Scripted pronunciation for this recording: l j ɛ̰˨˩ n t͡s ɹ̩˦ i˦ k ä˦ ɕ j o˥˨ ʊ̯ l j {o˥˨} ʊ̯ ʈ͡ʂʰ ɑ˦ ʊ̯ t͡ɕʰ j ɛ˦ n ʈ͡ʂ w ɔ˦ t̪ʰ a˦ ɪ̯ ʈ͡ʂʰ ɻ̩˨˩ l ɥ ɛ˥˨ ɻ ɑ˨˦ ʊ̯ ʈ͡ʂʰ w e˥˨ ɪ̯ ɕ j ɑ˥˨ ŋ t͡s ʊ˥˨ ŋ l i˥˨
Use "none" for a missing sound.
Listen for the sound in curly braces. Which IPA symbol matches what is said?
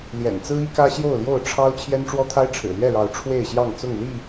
o˥˨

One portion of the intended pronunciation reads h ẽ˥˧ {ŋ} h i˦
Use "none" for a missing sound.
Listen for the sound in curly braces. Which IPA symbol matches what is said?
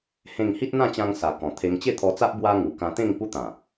ŋ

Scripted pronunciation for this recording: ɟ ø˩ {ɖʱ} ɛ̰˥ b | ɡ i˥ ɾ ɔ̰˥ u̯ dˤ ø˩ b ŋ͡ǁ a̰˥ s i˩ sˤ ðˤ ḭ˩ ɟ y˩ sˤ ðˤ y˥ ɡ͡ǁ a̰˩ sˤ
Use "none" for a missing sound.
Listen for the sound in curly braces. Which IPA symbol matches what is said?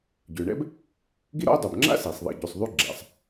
ɳ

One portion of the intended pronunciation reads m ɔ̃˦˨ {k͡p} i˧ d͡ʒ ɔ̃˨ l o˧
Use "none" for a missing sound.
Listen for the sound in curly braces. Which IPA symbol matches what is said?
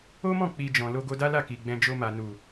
k͡p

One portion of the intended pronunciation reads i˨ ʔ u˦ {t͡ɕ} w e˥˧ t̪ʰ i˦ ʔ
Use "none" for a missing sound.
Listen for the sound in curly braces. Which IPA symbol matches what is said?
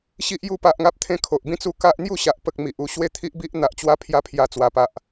ɕ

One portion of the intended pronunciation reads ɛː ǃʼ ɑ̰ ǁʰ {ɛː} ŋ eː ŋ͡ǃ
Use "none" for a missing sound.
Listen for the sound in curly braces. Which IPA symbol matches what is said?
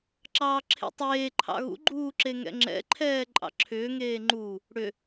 ʏː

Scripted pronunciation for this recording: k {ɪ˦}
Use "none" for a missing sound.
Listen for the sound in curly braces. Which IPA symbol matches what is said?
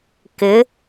ɪ˨˦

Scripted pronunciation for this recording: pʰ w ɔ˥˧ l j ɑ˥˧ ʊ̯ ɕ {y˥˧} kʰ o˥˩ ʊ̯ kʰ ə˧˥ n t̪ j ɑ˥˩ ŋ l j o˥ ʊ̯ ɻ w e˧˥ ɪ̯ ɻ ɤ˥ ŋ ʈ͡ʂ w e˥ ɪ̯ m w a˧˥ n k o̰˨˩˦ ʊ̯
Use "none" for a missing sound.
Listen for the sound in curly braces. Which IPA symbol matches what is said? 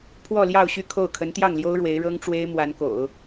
y˥˧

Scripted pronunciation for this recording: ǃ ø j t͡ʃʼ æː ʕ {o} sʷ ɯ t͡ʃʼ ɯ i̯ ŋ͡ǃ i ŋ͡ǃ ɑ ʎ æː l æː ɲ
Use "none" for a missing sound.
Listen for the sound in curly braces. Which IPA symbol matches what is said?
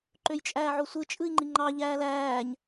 o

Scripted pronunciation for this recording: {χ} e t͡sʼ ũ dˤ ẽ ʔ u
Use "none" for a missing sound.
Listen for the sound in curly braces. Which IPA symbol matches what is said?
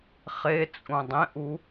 χ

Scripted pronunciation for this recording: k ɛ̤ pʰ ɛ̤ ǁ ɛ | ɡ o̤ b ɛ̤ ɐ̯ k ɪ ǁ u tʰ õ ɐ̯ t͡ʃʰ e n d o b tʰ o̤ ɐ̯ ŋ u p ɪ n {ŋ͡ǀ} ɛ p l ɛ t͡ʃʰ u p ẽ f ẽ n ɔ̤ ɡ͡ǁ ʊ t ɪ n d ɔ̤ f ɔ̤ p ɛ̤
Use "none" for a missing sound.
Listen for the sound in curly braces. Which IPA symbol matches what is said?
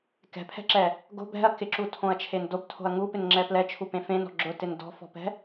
ŋ͡ǁ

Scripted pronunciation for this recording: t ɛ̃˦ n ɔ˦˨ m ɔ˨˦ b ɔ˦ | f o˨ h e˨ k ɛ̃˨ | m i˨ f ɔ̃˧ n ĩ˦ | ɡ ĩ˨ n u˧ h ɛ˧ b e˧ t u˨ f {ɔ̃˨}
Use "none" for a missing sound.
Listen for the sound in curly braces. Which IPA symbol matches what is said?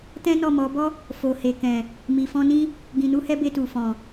ɔ̃˨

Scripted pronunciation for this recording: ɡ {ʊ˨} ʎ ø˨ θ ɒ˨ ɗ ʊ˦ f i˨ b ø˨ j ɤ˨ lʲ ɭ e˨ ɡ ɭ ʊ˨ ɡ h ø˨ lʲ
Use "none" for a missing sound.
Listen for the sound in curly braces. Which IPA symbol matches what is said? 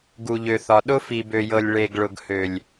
u˨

